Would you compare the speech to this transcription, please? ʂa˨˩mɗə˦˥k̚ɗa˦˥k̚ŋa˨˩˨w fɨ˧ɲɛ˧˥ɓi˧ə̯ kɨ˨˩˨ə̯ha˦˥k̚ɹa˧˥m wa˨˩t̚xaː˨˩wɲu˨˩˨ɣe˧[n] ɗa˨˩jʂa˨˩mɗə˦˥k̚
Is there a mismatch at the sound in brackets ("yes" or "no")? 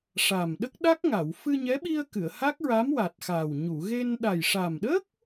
no